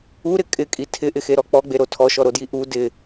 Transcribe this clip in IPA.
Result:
uɾɪ kʼɪkʼi tʰɪʔɪxeɾɔ k͡pɔɡ͡beɾo tʰɔʃɔɾodji ʔu dɪ

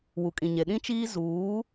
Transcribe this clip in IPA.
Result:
wu˨kʼĩ˨ɲe˨ ɗĩ˦t͡ʃiː˦ zuː˨˦

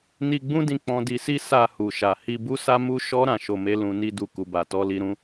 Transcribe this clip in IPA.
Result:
ni˧ ɡ͡bũ˦dĩ˧ k͡pɔ̃˧di˧si˦ sa˧ hu˨ʃa˨ hi˧bu˦sa˦ mu˦ʃɔ˦ ɾã˦˨ʃo˧me˦ lũ˧ni˦du˧ ku˨ba˨tɔ˨˦ li˧ɾũ˦

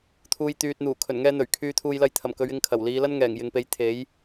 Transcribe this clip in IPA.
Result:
t̪ʰuː˨jt̪yː˨t̚ n̪uː˨˩kʰɵ˨˩nŋɛː˧n̪ɵ˨˩ɥ kʰyː˨t̪ʰuː˨jlɐ˧jt̪ʰɐ˨˩m kɵ˨˧ɥ ɪ˧ŋ kʰɐ˨˩wliː˨˧lɐ˥n ŋɛː˨˩ŋjɪ˨ŋpe˨˥j t̪ʰe˨˥j

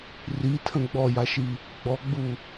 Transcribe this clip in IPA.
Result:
ritʰə̃ ɡ͡bɔjaʃi | ɡ͡bɔɡ͡bu

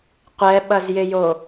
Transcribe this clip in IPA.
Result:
qʷɛɓɐzjɪjo

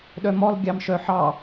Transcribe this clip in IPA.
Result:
ɗœmɔlˠ ɡʲɑmʃœħɑ

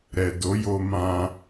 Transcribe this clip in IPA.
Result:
ɾɛ˨do˨˦ jo˧mã˧

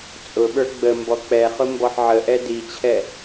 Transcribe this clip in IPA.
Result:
t͡sʼʊɓə˞ ɡ͡bə mbɔk͡pɛχʊ mbɔħʕəʔɛ dit͡ɕʰɛ

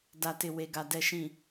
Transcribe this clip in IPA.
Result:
da˨tɪ˨ we˨ɡa˨ dɛ˨ʃĩ˨

